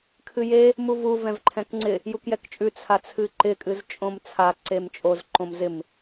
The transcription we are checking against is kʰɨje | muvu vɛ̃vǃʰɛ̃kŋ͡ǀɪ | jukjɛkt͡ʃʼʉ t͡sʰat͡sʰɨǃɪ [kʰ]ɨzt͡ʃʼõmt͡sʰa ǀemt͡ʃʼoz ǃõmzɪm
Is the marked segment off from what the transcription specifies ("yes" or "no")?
yes